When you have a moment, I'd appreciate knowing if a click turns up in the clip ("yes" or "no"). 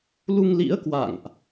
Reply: no